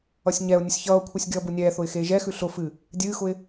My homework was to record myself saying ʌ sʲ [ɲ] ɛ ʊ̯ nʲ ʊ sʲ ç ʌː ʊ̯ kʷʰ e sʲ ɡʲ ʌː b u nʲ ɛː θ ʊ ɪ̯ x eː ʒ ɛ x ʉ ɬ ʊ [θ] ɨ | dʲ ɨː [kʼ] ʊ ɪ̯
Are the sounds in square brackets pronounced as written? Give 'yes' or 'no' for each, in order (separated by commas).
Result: yes, no, no